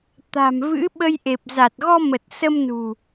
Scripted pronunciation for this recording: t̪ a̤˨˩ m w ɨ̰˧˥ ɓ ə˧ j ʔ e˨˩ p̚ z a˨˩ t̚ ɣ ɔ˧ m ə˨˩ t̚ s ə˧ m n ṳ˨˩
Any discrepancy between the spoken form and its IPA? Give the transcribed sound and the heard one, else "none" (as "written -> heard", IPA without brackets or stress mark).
w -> v